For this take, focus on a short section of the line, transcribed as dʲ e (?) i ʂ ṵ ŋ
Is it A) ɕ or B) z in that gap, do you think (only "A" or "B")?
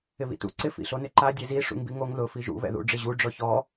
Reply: B